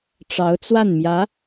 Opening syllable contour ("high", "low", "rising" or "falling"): rising